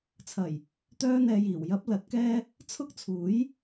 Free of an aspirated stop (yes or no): no